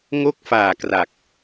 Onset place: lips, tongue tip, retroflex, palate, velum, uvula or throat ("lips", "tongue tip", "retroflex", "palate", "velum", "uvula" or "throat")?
velum